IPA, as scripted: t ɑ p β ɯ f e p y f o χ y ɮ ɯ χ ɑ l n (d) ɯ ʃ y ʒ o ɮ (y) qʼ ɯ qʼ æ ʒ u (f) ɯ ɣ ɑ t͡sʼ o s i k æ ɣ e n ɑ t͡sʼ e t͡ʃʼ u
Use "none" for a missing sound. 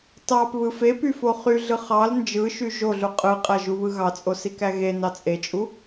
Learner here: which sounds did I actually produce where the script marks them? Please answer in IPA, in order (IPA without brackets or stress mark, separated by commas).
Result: d͡ʒ, u, β